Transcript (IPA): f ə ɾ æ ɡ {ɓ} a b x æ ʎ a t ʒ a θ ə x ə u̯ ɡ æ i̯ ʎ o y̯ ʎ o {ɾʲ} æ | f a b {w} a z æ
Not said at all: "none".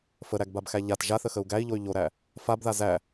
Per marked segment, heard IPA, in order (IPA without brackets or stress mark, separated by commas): b, ɾ, ð